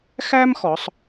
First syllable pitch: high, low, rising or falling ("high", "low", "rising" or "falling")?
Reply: high